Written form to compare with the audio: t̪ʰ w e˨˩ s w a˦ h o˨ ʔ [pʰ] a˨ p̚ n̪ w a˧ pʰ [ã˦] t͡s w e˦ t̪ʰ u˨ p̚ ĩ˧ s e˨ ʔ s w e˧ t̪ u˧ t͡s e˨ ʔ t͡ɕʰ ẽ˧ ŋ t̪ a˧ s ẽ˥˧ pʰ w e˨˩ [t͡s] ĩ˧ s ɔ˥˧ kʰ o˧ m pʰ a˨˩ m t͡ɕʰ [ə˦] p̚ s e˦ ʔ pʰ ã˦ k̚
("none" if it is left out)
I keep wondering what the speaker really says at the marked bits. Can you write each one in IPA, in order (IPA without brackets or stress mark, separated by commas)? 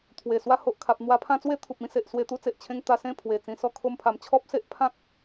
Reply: kʰ, ã˦, t͡s, ɔ˦